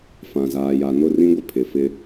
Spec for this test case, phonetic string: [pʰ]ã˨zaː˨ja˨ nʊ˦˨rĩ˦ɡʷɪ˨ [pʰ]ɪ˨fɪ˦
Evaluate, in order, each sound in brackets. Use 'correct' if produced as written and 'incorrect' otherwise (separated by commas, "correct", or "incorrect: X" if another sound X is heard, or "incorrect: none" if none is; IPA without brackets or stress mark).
incorrect: f, correct